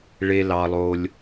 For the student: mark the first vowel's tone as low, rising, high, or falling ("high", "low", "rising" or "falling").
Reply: low